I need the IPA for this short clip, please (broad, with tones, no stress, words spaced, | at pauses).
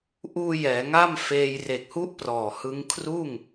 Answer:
ʔuː˧ jɛː˩˦ŋa˥˩m feː˧j re˨˩k̚hu˦˥ʔ prɔː˨˩hɯ˦˥ŋ kʰruː˥˩ŋ